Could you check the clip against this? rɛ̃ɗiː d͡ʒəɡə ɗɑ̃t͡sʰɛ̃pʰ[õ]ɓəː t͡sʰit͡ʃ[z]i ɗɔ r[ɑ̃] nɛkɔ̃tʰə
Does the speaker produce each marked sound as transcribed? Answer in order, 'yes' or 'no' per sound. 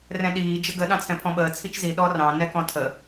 no, yes, yes

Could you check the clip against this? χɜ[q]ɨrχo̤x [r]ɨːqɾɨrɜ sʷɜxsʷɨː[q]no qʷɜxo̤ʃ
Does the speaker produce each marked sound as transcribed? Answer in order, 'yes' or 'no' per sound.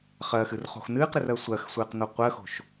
no, no, yes

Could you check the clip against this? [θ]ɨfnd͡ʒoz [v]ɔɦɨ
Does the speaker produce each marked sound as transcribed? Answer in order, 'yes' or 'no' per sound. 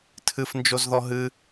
no, no

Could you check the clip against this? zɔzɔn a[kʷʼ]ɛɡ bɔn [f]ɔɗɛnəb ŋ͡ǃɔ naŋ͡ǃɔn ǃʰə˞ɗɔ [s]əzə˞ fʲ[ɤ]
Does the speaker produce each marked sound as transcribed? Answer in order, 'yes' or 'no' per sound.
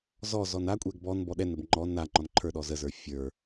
yes, no, no, no

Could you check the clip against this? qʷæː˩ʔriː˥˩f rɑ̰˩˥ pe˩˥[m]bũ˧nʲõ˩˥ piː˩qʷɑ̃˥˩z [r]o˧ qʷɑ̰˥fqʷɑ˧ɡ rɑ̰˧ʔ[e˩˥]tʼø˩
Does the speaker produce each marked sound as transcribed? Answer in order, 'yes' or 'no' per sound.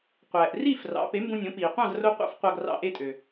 yes, yes, no

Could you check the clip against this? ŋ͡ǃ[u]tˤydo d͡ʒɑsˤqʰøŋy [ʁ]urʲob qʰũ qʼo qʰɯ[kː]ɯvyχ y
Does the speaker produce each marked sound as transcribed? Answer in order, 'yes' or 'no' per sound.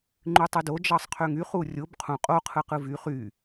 no, no, no

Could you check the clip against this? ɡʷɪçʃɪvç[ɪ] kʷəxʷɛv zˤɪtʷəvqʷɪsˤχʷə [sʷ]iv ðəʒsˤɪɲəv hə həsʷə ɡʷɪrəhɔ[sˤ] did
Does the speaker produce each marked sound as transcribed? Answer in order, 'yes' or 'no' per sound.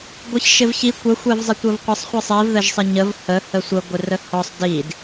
no, no, yes

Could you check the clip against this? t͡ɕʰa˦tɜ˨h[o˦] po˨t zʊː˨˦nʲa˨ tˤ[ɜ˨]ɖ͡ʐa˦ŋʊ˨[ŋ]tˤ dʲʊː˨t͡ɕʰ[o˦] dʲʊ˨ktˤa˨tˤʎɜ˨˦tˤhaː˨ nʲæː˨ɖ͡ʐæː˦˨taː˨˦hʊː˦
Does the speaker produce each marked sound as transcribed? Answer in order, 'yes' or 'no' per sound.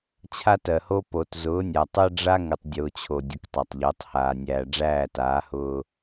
yes, no, no, no

